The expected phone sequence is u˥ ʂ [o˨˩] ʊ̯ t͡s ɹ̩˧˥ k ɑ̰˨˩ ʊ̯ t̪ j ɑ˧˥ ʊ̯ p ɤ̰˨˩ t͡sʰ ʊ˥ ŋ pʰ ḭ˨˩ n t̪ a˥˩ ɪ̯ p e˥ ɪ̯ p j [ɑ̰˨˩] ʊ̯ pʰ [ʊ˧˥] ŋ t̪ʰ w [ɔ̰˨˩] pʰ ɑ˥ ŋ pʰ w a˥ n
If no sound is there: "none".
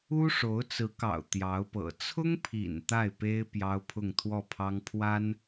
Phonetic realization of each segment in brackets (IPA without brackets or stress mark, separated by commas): o˧˥, ɑ˥, ʊ˥˧, ɔ˥˩